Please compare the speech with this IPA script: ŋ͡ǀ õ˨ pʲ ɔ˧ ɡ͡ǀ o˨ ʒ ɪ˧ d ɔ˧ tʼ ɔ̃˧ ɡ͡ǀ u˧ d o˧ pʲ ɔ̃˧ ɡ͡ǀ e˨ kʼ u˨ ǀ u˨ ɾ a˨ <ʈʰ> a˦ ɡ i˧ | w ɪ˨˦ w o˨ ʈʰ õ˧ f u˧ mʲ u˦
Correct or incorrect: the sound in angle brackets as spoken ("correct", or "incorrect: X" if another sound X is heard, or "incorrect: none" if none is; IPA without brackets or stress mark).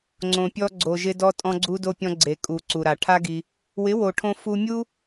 correct